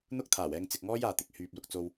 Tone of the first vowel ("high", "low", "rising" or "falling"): high